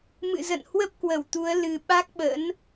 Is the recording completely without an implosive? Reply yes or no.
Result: no